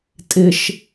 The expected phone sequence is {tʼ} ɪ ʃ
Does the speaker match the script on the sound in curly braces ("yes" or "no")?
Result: yes